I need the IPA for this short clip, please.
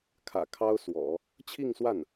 kʰ ä̰˨˩ kʰ ɑ˥ ʊ̯ s w ɔ̰˨˩˦ | t͡ɕʰ i˥˧ ŋ s w a˥˩ n

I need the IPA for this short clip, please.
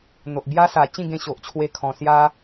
n̪ o˨ ʔ b j a˧ s a˨˩ t͡ɕ ĩ˥˧ ɡ ẽ˧ ɕ o˨ ʔ t͡ɕʰ w e˧ kʰ ɔ̃˨˩ s j a˧

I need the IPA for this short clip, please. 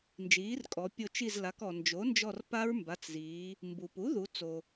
n d͡ʒ iː˩˥ r kʼ ɔ˩˧ pʲ o˦˨ t͡ʃ i˦˨ z l a˩˧ k ɔ˩ n d͡ʒ o˩˥ n d͡ʒ ɔ˦˨ r p a˦˥ ɹ m b a˩˧˩ t͡s z iː˩˧ | m b u˩ p u˩˥ ð u˩˧ t͡s o˩

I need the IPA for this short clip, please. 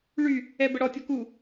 ɭ y | ɛ b ə ɽ ɔ tʲ ɔ k u

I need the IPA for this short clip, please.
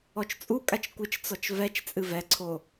ɔ t͡ʃ t͡sʼ u kʼ a t͡ʃ kʷ ɨ t͡ʃ t͡s ɔ t͡ʃ v ɛ t͡ʃ t͡sʼ ɨ v ɛ ǀʰ o

